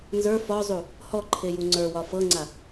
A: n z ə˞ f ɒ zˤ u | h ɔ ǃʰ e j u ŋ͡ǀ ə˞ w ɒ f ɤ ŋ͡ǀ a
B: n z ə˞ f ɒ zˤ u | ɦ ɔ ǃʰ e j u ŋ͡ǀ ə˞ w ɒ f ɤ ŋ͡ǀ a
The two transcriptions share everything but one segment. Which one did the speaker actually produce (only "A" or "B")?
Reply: A